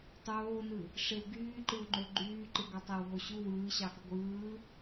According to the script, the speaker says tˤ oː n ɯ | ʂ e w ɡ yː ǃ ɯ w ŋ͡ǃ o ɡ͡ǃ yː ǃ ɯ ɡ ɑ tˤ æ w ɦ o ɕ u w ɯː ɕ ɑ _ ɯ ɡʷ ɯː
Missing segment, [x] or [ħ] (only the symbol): x